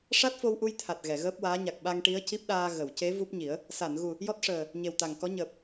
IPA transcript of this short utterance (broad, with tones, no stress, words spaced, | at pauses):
ʂa˦˥t̚fo˧wʔu˧j t̪ʰa˨˩t̚ ɣɛ˨˩˨ɣəː˦˥p̚waː˧˥ ɲa˨˩k̚ ɓa˧ŋʈi˧˥ə̯ci˦˥p̚ɗaː˧ ɣə˨˩˨w ce˧˥ vu˦˥p̚ɲi˨˩˦ə̯ | sa˨˩˨nɣu˨˩ | jɔ˦˥t̚ʂəː˨˩ | ɲe˨˩wt̪a˨˩ŋkɔ˧˥ ɲəː˨˩p̚